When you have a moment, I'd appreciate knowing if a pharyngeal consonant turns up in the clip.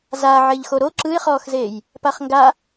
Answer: yes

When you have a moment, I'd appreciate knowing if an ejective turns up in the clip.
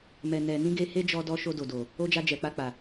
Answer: no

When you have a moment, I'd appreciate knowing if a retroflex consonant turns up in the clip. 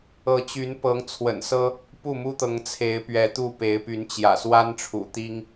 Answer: yes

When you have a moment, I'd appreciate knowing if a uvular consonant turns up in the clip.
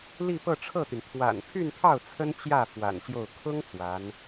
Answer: no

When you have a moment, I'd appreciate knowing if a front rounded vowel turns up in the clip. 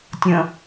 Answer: no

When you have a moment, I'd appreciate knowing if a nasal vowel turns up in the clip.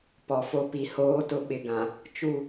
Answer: yes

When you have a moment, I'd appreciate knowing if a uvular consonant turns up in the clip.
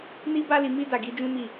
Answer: no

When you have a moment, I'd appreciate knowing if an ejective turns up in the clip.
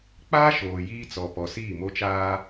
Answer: no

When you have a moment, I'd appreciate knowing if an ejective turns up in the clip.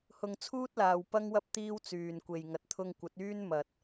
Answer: no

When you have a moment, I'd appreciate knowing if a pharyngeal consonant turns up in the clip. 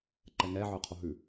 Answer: yes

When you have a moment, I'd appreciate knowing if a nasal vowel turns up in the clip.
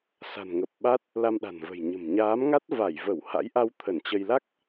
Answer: no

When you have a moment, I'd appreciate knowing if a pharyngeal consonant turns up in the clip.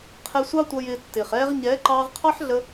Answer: yes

